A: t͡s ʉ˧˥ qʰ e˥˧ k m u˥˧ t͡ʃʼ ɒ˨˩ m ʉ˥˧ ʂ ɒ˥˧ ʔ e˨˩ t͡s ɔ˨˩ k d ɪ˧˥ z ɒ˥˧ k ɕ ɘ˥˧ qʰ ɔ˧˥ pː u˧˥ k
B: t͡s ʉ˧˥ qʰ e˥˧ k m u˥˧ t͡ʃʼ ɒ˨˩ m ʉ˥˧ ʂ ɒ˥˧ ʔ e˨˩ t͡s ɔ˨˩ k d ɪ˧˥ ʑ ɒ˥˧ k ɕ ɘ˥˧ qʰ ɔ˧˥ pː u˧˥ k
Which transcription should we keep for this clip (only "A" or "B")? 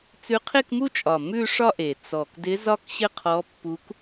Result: A